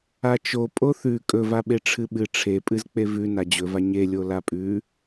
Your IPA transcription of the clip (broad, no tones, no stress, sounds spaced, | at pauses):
a t͡ʃ o pʼ o θ ʉ kʼ ɵ v a ɓ e ʈ͡ʂʰ ɨ ɓ ɨ ʈ͡ʂʰ e pʼ ɨ z k͡p e v ʉ n a d͡ʑ ɵ v a ɲ e lʲ o l a pʼ ʉ